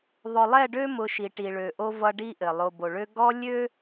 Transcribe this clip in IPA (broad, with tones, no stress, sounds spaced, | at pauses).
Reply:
ðˤ ʊ˨ lˠ ɛ˦˨ ɖ ø˦ m ʊ˨ ʃ i˨ ʈ i˨ ɭ ø˨ ʔ o˦ v ʌ˦ ɖ i˦ ʔ ɘ˨ lˠ o˨ b o˨ ɭ ø˦ ɡ ɔ˦ lʲ ø˦